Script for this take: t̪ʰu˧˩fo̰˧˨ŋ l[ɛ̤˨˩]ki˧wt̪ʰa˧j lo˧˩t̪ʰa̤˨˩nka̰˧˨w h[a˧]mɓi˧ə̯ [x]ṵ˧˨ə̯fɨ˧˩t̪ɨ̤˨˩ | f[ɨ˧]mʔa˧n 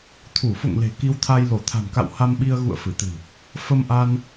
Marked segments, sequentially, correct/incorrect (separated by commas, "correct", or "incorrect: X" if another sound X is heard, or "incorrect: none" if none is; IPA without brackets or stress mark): incorrect: e̤˨˩, correct, incorrect: ɣ, incorrect: ə˧